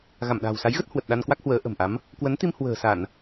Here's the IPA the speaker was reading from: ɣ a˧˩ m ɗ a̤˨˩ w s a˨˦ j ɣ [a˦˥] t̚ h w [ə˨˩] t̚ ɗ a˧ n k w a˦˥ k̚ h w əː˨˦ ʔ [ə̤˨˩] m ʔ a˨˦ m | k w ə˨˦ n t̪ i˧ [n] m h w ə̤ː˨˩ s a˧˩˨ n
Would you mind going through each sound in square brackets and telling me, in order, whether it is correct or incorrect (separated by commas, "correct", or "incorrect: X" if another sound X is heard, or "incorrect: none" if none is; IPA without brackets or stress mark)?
incorrect: ə˦˥, correct, correct, incorrect: none